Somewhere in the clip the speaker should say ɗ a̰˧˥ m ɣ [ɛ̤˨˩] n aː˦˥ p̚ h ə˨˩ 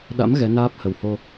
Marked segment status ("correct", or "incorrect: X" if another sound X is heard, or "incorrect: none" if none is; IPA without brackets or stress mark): incorrect: ɛ˨˦